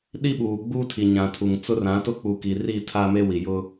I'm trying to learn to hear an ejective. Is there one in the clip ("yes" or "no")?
no